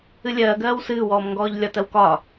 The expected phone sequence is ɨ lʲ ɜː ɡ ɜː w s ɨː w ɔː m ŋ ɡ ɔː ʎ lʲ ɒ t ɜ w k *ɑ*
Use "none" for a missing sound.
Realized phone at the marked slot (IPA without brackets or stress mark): ɒ